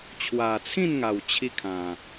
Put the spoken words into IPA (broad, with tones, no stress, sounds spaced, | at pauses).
t͡ɕʰ w a˨˩ t͡sʰ ĩ˥˧ n ŋ a˨˩ w t͡ɕʰ i˦ kʰ ã˨˩